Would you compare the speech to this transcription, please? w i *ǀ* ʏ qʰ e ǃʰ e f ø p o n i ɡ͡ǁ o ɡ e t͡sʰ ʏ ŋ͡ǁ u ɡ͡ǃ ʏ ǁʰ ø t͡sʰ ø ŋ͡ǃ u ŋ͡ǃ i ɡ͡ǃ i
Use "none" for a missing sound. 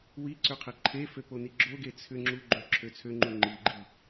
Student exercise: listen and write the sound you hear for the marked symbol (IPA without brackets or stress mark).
ǀ